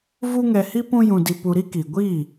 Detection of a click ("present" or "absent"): absent